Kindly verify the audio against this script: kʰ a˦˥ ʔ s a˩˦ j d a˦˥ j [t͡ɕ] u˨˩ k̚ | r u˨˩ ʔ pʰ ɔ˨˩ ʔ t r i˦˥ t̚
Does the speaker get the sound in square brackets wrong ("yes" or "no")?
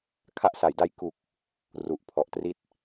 yes